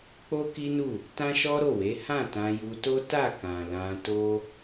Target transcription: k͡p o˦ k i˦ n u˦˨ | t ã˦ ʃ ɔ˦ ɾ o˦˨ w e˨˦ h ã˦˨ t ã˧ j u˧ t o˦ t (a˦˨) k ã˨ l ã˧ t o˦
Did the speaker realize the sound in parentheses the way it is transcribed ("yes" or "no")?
yes